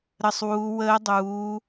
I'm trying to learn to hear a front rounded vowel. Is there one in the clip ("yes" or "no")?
no